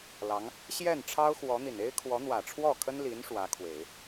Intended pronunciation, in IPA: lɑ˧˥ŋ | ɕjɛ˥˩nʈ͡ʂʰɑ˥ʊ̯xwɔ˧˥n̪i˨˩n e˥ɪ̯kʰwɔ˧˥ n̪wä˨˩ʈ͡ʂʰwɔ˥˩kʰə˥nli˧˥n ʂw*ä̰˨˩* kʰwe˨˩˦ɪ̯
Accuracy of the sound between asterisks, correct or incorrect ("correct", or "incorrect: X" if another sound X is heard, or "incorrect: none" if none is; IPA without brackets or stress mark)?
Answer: incorrect: ä˧˥